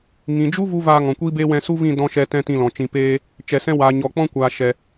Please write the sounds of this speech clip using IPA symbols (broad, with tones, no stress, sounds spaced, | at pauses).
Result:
ŋ ĩ˨ d͡ʒ u˦ v u˦ v aː˧ ŋ ɔ̃˨ kʷ iː˦ b eː˦ w ɛ̃˧ s u˦ v ĩ˦˨ d ɔ̃˧ ʃ ɛ˧ t ɛ̃˦ t ĩ˧ l ɔ̃˨ t͡ʃ ĩ˨ p eː˧ | t͡ʃ ɛ˨ s ɛ̃˧ w aː˨ ɲ ɔ˨ k͡p ɔ̃˦ kʷ aː˨ ʃ ɛ˨